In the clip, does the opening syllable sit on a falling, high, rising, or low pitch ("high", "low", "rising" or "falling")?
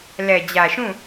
low